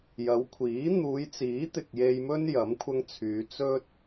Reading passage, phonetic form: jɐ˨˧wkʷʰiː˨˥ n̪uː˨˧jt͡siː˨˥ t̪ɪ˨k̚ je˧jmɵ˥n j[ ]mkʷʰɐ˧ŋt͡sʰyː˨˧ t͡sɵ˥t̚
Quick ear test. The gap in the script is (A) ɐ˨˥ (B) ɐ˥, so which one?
A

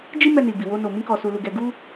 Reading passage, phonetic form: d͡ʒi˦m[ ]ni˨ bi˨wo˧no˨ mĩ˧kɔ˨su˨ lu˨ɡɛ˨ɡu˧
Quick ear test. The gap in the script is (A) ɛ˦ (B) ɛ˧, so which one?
B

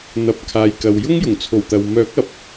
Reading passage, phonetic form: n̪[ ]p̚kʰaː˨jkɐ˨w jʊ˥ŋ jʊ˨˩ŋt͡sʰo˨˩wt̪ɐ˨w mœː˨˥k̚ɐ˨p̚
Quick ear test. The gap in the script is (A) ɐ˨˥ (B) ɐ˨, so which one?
A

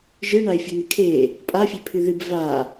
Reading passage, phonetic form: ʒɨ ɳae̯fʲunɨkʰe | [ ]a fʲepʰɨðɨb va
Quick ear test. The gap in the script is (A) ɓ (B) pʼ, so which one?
B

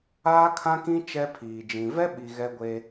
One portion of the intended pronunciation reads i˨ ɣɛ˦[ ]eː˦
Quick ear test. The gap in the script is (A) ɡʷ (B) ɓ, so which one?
A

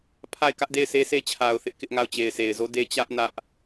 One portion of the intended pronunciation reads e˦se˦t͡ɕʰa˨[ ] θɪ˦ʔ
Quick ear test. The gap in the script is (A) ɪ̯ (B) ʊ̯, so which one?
B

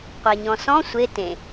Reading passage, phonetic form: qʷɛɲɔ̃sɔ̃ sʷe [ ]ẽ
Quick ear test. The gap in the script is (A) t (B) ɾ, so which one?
A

